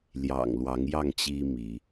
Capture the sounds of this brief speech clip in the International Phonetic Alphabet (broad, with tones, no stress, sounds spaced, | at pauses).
l j ɑ̰˨˩ ŋ l w ɑ˨˦ ŋ j ɑ˥˨ ŋ t͡ɕ i˦ m i˨˦